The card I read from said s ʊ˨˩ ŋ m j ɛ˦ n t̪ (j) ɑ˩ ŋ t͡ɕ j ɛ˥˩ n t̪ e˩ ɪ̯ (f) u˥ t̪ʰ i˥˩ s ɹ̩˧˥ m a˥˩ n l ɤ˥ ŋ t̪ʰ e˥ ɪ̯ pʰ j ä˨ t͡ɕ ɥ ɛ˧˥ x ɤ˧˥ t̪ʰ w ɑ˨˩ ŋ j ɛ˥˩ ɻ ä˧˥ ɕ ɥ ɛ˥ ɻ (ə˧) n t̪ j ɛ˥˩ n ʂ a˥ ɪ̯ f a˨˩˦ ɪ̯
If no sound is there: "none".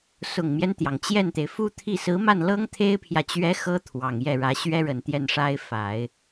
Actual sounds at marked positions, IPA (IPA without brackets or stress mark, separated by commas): j, f, ə˨˩